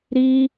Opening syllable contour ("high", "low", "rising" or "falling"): high